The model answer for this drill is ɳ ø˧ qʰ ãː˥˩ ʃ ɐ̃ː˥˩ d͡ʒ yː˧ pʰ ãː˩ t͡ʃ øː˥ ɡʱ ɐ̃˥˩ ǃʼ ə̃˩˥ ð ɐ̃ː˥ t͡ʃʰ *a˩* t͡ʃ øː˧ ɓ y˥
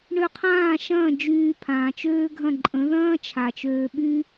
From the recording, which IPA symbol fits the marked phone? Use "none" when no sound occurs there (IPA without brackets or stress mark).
a˩